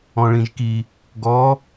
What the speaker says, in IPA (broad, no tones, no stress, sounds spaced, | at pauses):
ɔ̃ ɭ ĩ ʒ k i | ɡ ɔ